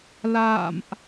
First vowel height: low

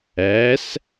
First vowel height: low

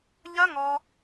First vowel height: low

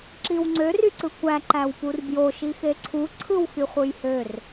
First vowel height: high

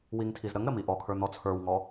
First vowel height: high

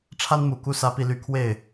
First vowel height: low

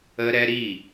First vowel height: mid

